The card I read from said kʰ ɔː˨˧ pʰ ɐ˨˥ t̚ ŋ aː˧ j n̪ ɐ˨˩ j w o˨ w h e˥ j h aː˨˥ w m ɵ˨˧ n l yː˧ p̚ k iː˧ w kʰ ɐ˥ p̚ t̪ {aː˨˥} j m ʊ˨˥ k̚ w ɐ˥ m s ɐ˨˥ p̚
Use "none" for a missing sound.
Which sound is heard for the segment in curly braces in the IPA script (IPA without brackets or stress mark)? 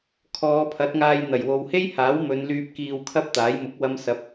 aː˨˥